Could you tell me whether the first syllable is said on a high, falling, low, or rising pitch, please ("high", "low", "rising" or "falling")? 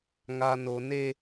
low